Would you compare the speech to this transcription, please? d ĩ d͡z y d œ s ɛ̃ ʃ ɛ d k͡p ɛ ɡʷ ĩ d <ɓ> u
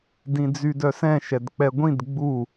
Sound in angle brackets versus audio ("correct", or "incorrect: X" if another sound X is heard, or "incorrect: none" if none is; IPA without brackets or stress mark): incorrect: ɡ͡b